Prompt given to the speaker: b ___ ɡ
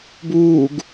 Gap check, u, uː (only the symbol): uː